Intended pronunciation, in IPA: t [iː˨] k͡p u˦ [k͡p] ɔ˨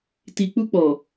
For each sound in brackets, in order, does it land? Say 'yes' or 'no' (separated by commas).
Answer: no, yes